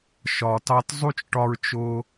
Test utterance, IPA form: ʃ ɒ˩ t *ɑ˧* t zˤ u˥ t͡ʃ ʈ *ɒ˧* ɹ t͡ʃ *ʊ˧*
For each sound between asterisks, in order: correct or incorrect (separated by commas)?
correct, correct, correct